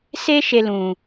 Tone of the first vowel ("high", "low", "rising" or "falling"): high